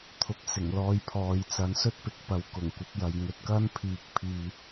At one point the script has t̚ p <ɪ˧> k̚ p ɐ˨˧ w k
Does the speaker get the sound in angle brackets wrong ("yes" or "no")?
yes